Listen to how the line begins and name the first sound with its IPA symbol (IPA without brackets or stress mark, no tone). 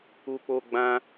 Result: u